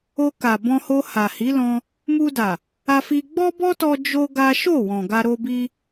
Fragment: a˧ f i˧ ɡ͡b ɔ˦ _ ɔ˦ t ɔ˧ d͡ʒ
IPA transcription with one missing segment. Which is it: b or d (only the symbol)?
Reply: b